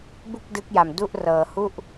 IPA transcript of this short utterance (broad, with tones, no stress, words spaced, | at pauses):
bu˥˩k̚dɯ˦˥k̚ja˧mdu˥˩ʔ rɤː˧hu˥˩ʔ